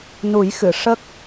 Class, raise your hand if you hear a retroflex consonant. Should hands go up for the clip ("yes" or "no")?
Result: yes